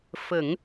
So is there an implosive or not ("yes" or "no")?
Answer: no